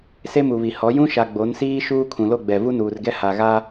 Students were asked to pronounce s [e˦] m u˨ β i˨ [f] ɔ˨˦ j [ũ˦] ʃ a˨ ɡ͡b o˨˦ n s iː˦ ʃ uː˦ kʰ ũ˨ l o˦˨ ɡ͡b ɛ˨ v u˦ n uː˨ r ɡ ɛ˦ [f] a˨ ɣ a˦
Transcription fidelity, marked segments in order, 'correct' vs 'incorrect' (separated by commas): correct, incorrect, correct, incorrect